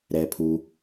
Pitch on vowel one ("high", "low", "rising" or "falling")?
low